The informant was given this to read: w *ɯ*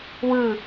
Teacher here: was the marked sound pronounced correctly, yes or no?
yes